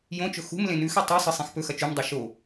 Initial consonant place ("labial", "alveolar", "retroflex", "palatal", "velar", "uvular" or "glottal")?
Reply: palatal